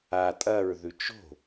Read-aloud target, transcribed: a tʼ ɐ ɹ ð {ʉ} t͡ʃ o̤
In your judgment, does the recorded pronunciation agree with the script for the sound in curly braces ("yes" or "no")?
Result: yes